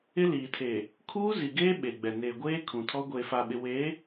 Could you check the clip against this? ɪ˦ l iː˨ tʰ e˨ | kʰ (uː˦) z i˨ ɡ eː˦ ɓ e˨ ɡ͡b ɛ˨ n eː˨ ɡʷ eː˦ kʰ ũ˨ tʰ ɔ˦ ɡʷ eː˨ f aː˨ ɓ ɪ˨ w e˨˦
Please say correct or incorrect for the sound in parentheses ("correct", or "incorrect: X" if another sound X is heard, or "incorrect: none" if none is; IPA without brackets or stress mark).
correct